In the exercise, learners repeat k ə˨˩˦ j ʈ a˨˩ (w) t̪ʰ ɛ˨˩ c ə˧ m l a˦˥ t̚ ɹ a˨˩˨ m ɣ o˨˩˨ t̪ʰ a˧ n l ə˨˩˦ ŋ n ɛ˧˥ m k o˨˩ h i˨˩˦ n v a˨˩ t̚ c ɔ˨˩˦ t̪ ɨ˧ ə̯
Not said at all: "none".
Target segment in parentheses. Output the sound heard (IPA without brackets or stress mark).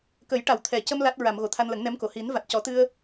w